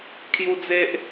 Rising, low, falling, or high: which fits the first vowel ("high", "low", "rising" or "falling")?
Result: high